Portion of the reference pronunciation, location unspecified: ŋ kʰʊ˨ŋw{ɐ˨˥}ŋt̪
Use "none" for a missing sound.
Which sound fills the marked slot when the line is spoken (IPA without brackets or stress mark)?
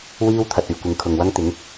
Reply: ɐ˥